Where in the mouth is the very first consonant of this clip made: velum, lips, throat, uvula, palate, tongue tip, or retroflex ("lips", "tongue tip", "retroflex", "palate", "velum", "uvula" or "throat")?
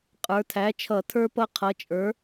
uvula